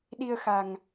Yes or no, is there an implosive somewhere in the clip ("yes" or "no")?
yes